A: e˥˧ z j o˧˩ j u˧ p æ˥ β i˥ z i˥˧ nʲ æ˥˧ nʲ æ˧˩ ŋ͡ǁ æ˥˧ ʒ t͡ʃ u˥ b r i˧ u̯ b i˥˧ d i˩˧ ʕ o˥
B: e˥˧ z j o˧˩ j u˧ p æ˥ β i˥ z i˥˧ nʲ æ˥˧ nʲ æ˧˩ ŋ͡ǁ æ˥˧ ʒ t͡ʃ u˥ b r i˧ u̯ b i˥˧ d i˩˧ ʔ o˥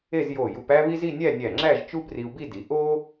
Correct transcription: B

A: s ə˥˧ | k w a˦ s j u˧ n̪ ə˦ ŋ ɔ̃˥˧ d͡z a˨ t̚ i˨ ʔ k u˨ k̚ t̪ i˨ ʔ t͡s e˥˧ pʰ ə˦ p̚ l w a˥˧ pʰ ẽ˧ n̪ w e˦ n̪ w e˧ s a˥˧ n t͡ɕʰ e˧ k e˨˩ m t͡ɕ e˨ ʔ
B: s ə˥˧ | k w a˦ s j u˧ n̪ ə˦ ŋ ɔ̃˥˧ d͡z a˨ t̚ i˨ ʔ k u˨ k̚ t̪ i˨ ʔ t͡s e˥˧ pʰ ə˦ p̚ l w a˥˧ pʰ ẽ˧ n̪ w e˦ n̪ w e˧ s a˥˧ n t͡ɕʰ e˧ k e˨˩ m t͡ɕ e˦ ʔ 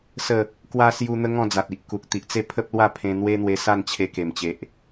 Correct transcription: A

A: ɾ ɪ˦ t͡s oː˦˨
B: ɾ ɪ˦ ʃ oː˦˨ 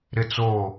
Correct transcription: A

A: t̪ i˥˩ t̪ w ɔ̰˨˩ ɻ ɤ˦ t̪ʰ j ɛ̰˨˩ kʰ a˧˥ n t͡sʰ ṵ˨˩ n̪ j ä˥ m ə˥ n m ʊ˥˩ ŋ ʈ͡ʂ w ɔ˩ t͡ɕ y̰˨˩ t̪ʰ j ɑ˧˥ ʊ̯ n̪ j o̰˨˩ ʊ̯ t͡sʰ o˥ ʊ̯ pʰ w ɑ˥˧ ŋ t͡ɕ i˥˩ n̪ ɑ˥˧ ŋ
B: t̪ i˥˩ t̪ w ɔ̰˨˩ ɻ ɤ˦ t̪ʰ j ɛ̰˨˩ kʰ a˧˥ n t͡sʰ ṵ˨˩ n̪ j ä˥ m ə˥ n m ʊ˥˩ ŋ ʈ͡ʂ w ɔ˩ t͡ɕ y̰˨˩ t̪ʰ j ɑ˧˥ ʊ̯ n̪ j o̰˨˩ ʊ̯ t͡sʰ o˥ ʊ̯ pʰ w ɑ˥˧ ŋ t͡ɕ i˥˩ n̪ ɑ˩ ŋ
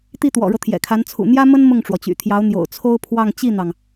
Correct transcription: B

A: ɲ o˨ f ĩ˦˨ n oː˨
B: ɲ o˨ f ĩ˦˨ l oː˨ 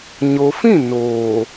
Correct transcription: A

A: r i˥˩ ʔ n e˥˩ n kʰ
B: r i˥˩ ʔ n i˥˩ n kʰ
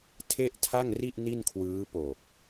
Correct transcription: B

